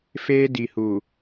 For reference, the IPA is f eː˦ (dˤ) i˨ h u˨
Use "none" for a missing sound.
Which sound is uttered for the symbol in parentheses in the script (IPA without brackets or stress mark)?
d